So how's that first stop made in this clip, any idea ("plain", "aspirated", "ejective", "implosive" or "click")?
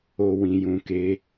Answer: plain